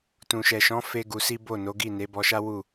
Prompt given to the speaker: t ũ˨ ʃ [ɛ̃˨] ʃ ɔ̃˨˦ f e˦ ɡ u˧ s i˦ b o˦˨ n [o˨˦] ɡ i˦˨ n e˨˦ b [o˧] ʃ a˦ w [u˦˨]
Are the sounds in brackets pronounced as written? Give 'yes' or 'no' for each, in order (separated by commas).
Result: no, yes, no, yes